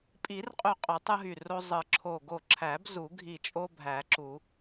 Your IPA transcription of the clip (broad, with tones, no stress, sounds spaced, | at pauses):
pʼ i˨˩˦ r qʼ y˧˩ qʼ y˨˩˦ tˤ ɯ˦ ɦ y˧˩ r o˦ zˤ ɯ˨˩˦ ǁʰ o˧˩ ɡ o˧˩ ǁʰ æ˨˩˦ b z u˨˩˦ ɡʱ i˧˩ t͡ʃʼ o˦ bʱ æ˨˩˦ ǁ u˨˩˦